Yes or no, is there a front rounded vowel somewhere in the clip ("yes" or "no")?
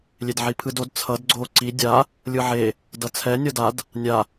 no